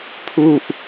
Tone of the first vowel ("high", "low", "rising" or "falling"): falling